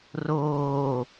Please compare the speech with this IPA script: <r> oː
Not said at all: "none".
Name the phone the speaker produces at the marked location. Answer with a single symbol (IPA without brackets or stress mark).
r